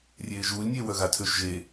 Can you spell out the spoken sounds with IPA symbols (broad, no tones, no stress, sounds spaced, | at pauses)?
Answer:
rʲ eː ʒ uː lʲ nʲ eː w œ ɣ a tʰ øː ʃ ʒ e